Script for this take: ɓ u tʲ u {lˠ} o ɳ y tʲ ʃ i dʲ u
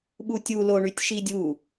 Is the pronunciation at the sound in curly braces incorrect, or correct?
incorrect